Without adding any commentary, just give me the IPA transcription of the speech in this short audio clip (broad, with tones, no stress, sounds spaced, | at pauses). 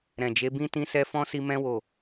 ɾ ɛ̃˨ d͡ʒ e˨˦ b ĩ˦ t ĩ˧ s ɛ˧ f ɔ̃˦ s i˧ m ɛ̃˧ w o˨